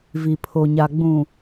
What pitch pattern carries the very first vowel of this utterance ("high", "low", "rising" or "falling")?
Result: low